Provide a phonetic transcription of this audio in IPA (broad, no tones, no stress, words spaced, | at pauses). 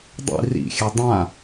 dˤḭ rḭxʲɘ dˤã